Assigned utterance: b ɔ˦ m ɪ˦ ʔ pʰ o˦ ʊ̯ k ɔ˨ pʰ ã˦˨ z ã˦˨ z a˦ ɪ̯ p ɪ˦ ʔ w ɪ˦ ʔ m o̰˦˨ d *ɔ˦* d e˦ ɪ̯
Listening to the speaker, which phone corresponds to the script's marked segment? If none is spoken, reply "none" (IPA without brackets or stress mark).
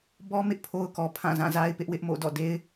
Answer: ɔ̰˦˨